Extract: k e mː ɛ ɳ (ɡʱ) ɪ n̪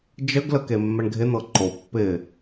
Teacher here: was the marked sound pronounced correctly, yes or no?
yes